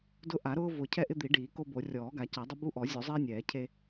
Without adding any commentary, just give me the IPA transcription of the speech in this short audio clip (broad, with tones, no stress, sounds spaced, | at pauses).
d ʊ˦ ʔ a˨˩˦ ɾ ʊː˦ v ʊ˨˩˦ cʰ ɛ˦ ʔ ɪ˦ d̪ i˨˩˦ ɖ iː˨˩˦ k o˦ b o˨˩˦ rʲ ɔː˨˩˦ ɡ a˨˩˦ c a˨˩˦ dˤ ʊ˦ b u˦ ʔ ɔ˨˩˦ zʲ o˨˩˦ zˤ iː˦ nʲ ɛː˨˩˦ cʰ e˦